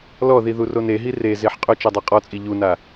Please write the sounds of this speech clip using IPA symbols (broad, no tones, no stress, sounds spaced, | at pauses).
l ɔ ð i ð u r o n e ɦ i r e z e ħ qʼ ʊ t͡ʃ a dˤ a qʼ ɔ t͡sʼ i ʎ u n a